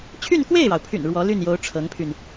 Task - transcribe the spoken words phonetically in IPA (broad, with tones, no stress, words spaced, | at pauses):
t͡ɕʰy˥˧nkwe˥˩ɪ̯ɻɑ˩ʊ̯pʰy̰˨˩n ɻwɔ˧˥ly˥˩njo˧˥ʊ̯ ʈ͡ʂʰɤ˧˥ŋpʰy˧n